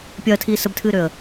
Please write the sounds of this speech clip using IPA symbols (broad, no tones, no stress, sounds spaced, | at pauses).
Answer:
pʲ ɐː tʰ iː s ə b tʰ ɨː ɾ ø ə̯